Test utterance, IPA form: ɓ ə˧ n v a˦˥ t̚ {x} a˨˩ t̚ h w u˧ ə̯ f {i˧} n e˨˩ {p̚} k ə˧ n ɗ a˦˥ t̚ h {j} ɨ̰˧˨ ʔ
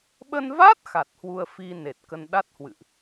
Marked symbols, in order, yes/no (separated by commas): yes, yes, no, no